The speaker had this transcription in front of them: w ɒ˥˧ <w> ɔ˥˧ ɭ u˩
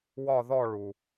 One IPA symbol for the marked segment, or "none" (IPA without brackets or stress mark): ð